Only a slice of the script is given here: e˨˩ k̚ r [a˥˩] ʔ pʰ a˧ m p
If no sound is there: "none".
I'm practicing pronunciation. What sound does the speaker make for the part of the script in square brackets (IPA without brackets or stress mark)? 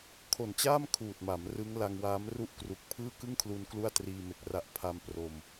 a˦˥